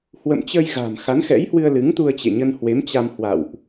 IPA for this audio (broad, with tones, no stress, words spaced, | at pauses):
hwə̰˧˨mt͡ɕə˧j ɣa̤˨˩m xa˨˦nxɛ̰˧˥jhwɨ˧ə̯ lɨ˨˦ŋt̪u˧ə̯t͡ɕḛ˧˨ ɲə˧nhwe˨˦mt͡ɕa˧m hwa̰˧˨wʔ